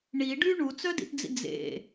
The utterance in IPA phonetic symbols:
ɳ i ɖ y ɳ u t͡s œ d ḭ t d͡z ḭ d͡z ḛ

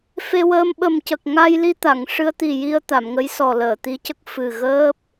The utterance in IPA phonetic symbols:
f e˧ w əː˧ m ɓ ə˨˩ m c ə˨˩ k̚ ŋ a˧ j l i˧ t̪ a˨˩˨ ŋ ʂ ɨ˧ ə̯ t̪ i˨˩ j i˧ ə̯ t̪ a˨˩˨ m ŋ ə˧˥ j s ɔ˨˩ l əː˨˩˨ t̪ i˧˥ c ə˦˥ k̚ f ɨ˨˩ ɣ əː˦˥ p̚

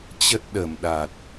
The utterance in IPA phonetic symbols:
t͡ɕ ə˦˥ t̚ ɗ ə˧˩ m ɗ a˨˩ t̚

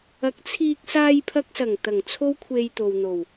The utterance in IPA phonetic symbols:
ɐ˨˥ k̚ t͡sʰ iː˧ k̚ s aː˧ j pʰ ɐ˧ k̚ s ɐ˨˩ ŋ t̪ ɐ˨˩ ŋ t͡sʰ o˥ w kʷʰ e˧ j t̪ o˨ w n̪ o˨˩ w

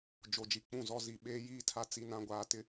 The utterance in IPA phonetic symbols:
d͡ʒ o˨ d͡ʒ i˨ k͡p ũ˦˨ z ɔ˦ z i˨ ɓ eː˦ j iː˦ tʰ a˦ t͡s i˦ n ã˦ ɡʷ aː˦ t ɪ˦

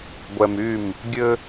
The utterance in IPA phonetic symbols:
ɡʷ ɛ˨ m y˦˨ m | ɡʲ ɘ˦

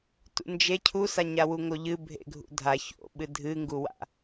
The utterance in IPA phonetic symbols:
t ṵ n d͡ʒ e cʰ u s a ɲ a w u ŋ o ʎ ɨ bʱ ḛ ɡʱ ṵ dʱ a ç o̰ ɓ ɨ dʱ ɨ ŋ ɡ u w a̰

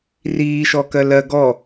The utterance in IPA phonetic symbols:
r iː ʃ ɔ k ɜ l ɜ ɡ ɔ

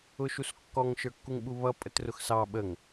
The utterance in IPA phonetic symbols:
ʊ ʃ u s kː ɔ ŋ ʃ ə˞ kː u ŋ ɓ u β ʌ pʼ ə t r ʊ x s ɑ ɓ ə ŋ

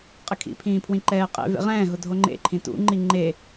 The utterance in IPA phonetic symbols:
qʼ ɪ kʰ ḭ pʰ ĩː pʰ w ĩ ǃ ɛː qʼ ḛ v ḛ ʁ ɛ̃ː ɦ ʊ dʱ o ŋ͡ǃ ḛ ǃʰ ĩ t ṵ ŋ͡ǃ i ŋ͡ǃ e

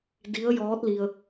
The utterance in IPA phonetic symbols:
d i˧˥ ə̯ j ɔː˧˥ t̚ l i˧ ə̯

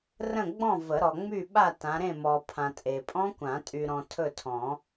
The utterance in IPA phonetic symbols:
r ə̃˥˨ ɡ͡b ɔ̃˥˨ v ə˨˩˦ ɾ ɔ˨ ŋ͡m y˥˨ ɓ a˥˨ t ã˨˦ ɾ ẽ˥˨ m ɔ˨ pʰ ã˨ tʼ e˨ pʼ ɔ̃˦˥ kʷ ã˨˩˦ tʼ y˨ ɾ ɔ̃˨ tʰ ɵ˥˨ tʰ ɔ̃˨˩˦

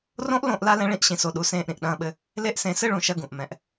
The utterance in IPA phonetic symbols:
r õ˦ ʔ l õ˦˨ ʔ l a˦ l ɛ̃˦ ɭ ĩ˦ ʔ ɕ ĩ˨ s o˨ ɗ u˨ s ẽː˦˨ ʔ ɾ ĩ˨ ʔ ɗ ɐ̃ː˦ ɓ ɘ˦ | l e˦ ʔ s ẽ˨˦ s ɘ˦ ɭ ũ˨ ʃ ɐ˦ ɡ ũ˨ ʔ m ɛ̃˨ ʔ

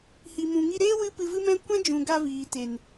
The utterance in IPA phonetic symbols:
h i˨ m ũ˨ ŋ i˧ ɾ eː˦ w ɨ˦ p ɨ˧ v ɨ˦ m ɛ̃˦ kʷ ɛ̃˦ d͡ʒ ũ˨ ɡ a˧ v iː˨ t e˨ n

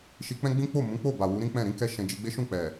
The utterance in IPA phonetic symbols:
ʃ i˧ k͡p ɛ̃˦ ɡ͡b ĩ˦ k͡p o˦˨ m ũ˨˦ k͡p o˦˨ b a˨ w u˨˦ ɾ ĩ˦ k͡p ɛ̃˦˨ ɾ ĩ˨˦ k ɛ˦ ʃ ɛ̃˧ d͡ʒ i˧ ɡ͡b e˦ ʃ ũ˦˨ k͡p ɛ˨

